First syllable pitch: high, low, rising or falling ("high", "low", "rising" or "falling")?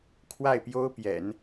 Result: falling